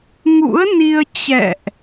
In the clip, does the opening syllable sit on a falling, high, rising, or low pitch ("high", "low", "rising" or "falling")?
rising